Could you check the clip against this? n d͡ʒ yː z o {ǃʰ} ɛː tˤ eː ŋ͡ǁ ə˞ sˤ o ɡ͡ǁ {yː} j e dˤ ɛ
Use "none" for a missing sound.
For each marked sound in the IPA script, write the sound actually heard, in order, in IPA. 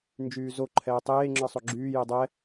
ǃʰ, yː

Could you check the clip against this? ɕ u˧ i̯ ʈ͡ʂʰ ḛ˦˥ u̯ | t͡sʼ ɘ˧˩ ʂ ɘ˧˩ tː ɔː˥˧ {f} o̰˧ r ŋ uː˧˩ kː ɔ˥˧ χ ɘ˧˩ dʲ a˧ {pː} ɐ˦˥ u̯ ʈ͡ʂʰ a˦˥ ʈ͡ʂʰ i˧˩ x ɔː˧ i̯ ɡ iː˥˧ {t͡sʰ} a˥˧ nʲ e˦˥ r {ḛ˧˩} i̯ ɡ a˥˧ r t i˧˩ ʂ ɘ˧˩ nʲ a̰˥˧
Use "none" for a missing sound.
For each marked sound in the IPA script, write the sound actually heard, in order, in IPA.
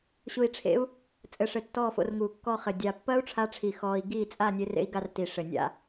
f, pː, t͡sʼ, ḛ˦˥

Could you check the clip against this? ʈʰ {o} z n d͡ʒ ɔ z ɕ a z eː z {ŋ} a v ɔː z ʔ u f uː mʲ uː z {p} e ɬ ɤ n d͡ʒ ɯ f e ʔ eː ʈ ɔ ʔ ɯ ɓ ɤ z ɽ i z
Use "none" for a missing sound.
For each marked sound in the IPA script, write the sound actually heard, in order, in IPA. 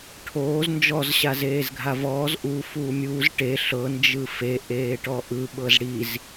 oː, ɡʱ, ʈ

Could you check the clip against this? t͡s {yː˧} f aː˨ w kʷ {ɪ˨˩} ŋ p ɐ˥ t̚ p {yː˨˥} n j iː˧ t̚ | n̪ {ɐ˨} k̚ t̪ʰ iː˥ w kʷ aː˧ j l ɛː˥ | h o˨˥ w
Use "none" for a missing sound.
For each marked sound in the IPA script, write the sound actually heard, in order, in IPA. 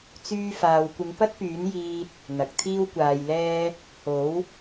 yː˧, ɪ˨˧, yː˨˥, ɐ˨

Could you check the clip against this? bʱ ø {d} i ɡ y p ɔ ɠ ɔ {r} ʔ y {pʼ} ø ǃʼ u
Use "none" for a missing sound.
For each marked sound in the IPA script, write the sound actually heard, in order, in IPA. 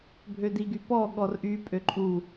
d, r, pʼ

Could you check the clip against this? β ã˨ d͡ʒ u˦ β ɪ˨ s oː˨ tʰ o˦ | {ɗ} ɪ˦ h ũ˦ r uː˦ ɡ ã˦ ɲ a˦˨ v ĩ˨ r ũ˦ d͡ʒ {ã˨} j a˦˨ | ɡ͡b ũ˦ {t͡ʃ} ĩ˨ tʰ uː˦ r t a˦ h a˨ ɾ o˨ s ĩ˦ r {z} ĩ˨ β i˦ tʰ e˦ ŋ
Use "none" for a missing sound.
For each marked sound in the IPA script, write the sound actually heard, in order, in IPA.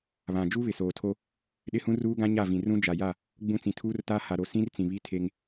ɗ, a˨, t͡s, t͡s

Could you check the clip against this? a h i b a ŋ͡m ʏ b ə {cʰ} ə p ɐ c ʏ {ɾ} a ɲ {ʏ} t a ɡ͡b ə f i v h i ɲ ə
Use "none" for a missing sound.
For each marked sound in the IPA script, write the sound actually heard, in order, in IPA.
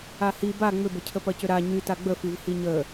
cʰ, ɾ, y

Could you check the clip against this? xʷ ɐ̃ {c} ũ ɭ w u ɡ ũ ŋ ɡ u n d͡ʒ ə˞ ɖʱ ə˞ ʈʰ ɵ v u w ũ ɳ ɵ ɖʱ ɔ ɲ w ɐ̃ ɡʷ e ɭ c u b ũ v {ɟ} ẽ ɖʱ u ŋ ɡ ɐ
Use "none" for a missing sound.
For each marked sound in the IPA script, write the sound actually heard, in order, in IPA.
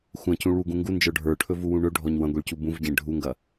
c, ɟ

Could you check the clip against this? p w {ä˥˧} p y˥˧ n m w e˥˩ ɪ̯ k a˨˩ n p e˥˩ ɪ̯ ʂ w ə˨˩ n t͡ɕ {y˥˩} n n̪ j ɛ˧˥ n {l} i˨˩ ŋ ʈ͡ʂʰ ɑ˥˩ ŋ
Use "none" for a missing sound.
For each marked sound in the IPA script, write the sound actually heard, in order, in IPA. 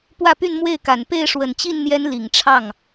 ä˥˧, i˥˩, l

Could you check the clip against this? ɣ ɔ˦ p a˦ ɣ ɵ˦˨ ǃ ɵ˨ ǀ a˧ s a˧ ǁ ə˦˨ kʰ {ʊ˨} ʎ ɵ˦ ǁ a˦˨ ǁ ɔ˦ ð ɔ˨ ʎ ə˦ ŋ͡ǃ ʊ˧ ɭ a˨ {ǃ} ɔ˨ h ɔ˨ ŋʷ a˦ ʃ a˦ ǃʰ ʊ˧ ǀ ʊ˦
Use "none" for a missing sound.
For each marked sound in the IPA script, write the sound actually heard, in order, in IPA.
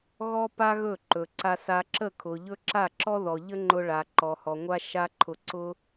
ʊ˨, ǃ

